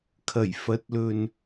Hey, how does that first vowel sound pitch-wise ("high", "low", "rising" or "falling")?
low